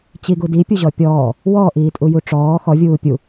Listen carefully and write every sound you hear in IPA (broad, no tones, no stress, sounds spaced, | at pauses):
t͡ɕ i ɡ u d i pʲ u ʑ ɔ pʲ ɔː | w ɔ ʔ iː tʼ u j u ʈ͡ʂ ɔː x ɔ vʲ uː pʲ u